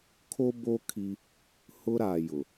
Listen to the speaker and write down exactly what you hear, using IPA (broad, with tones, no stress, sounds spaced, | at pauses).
kʰ o˦ b oː˦ kʰ i˦ | h ʊ˦ ɾ aː˨ j ʊ˨